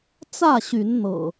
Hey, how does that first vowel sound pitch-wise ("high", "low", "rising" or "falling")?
falling